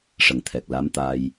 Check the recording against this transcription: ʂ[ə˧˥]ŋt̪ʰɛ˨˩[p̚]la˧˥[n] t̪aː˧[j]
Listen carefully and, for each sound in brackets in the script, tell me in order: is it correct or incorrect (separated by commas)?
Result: incorrect, incorrect, incorrect, correct